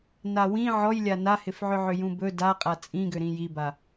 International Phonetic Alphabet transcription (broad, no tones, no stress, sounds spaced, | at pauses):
n a w ĩ ʕ ɔ j lʲ a n a h ɪ f ʕ ʏ ʕ ʏ j ũ b ɵ d a qʼ a t͡sʼ ĩ ɡ ʏ ɾ ĩ j i b a